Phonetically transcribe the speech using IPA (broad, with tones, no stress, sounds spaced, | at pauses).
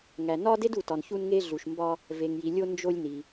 ŋ æ˩ n ɒ˥ d e˥ d u˩ t ɒ˩ n ç u˧ n ŋ e˧ ɮ u˩ ʃ m b ɒ˧ | v e˩ ŋ j i˩ lʲ o˧ n d͡ʒ o˧ lʲ n i˩